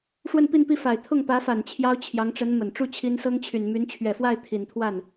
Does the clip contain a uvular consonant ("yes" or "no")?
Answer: no